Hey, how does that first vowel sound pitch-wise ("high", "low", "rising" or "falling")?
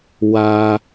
low